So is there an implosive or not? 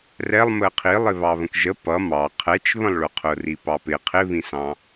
no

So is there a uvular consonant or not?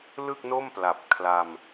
no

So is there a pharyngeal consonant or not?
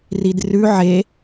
yes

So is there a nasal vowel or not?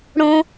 yes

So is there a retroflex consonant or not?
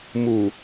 no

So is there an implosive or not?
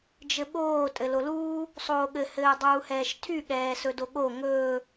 yes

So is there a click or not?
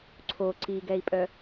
yes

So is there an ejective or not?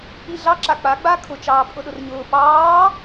yes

